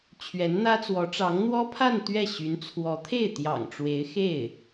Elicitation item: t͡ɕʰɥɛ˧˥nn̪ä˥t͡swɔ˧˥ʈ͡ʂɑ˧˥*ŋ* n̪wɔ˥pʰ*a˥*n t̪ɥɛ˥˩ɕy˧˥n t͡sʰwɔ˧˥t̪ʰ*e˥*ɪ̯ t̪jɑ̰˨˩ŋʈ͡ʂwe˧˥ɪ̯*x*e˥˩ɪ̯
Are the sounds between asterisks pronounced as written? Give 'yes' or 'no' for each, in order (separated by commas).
yes, no, no, yes